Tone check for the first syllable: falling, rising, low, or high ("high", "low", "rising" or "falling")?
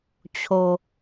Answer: high